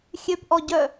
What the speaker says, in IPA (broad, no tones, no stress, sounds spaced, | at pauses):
xʲ ø p ʔ ɔ ɟ œ